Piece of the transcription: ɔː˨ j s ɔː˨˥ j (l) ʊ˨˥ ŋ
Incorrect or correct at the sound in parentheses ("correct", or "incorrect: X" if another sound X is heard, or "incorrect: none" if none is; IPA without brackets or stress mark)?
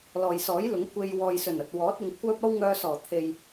correct